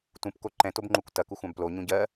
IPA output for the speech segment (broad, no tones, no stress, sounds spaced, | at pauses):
t ũ p k o ǃ ɛ̃ t o b ŋ͡ǃ u kʷ t ɐ k u xʷ ã b p l o ɲ ũ ɟ ɜ